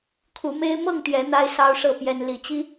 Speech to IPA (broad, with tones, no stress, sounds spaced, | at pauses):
kʰ u˨˦ m e˦ ɪ̯ m ɤ˥˨ ŋ t̪ j ɛ˨˦ n̪ a˦ ɪ̯ s ɑ˦ ʊ̯ ʂ ɤ˥˨ p j ɛ˦ n l i˨˦ t͡ɕ i˦